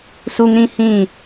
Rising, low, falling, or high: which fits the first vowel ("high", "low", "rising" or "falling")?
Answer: high